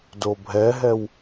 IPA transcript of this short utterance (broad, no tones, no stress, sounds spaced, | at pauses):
d o bʱ ɛ ɦ ɛ w